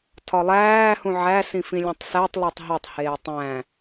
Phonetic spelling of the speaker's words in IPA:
tʰ ɒ lˠ æː h ũ ʕ æ s ĩ f ĩ lʲ õ tˤ s æ tˤ lˠ o tˤ ɦ o tˤ h eː tˤ æ̃

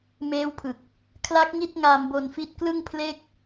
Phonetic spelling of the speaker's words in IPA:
m eː˦˥ w pʰ ɯ˨˩ k̚ | kʰ l a˦˥ k̚ ŋ i˥˩ t̚ ŋ a˧ m b o˧ n f i˦˥ t̚ k l ɯ˥˩ ŋ pʰ l e˥˩ k̚

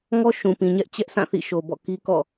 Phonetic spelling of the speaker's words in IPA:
ŋ ɔ˦ ʃ ũ˨ p ĩ˨ ɲ ɛ˦ ʔ t͡ɕ ɛ˦ ʔ sʰ ã˦˨ θ ḭ˦˨ ʃ o˨ b ɔ̰˦˨ k i˦ k ɔ̰˦˨

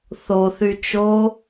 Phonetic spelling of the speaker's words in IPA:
θ o θ y t͡ʃ o

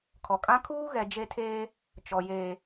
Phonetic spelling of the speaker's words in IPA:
kʰ ɔ˨ kʼ ã˦ kʰ uː˦ ɣ ɛ˨ d͡ʒ e˦ tʰ eː˦ | t͡ʃ ɔ˨ j eː˨

